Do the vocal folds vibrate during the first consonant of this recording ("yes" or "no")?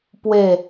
no